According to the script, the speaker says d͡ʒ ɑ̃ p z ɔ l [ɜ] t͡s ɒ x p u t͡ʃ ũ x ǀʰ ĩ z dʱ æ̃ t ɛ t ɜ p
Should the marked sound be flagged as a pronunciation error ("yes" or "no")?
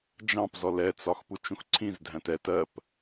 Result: yes